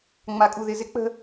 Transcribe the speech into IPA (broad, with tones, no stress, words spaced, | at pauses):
ŋ͡ma˨kʼu˨ðɪ˨ zɪ˦k͡pə̤˦